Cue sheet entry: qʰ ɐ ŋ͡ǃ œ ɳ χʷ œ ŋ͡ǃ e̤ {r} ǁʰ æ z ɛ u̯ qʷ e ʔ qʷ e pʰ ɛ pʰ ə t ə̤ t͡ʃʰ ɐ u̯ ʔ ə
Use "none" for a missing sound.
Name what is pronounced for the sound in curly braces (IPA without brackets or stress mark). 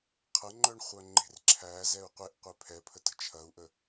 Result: r